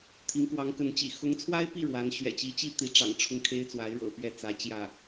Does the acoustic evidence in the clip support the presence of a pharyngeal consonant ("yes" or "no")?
no